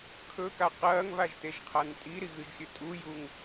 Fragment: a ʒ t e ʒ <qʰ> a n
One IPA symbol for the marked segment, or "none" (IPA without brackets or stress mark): qʰ